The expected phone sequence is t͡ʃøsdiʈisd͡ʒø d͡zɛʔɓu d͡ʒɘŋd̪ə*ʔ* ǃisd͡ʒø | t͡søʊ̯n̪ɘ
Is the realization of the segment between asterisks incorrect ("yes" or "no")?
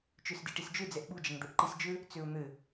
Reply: no